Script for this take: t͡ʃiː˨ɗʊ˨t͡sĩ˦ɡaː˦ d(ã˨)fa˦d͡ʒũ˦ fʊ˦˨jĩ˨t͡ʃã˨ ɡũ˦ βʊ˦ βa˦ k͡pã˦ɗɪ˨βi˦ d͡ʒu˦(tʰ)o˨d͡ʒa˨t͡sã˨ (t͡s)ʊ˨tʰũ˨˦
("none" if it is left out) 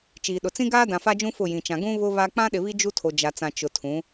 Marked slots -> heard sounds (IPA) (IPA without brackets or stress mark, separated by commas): ã˨, tʰ, t͡ʃ